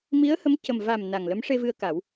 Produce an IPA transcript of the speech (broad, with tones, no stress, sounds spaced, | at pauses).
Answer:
m i˧˥ ə̯ h ə˧˥ m c ə˨˩ m v a˨˩ m n a˨˩ ŋ l ə˧˥ m ʂ e˧ v ɨ˧ ə̯ k a˨˩˦ w